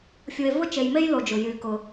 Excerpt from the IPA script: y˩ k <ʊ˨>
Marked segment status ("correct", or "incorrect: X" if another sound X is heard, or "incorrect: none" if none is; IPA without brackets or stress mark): incorrect: ʊ˩